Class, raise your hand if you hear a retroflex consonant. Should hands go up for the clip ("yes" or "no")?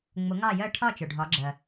yes